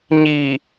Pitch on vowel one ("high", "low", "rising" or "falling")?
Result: low